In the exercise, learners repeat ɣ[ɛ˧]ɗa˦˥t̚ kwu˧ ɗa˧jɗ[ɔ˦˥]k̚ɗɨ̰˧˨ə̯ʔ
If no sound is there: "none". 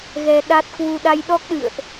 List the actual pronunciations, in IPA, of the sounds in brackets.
ɛ˧, ɔ˦˥

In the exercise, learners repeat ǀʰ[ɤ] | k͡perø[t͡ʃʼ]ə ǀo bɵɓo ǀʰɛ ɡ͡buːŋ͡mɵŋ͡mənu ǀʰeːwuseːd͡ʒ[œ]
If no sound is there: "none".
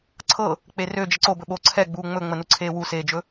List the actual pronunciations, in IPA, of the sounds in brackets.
ɤ, d͡ʒ, ɵ

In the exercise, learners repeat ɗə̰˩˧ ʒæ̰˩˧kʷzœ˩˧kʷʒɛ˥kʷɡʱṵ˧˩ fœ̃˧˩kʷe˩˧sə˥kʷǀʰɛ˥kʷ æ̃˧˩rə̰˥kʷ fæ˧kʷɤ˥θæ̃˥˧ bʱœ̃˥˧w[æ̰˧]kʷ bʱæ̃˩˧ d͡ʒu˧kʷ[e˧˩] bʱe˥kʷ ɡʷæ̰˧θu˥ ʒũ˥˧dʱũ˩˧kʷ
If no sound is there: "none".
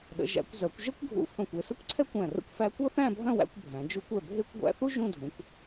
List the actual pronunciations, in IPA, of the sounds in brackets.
æ̰˧, ɛ˧˩

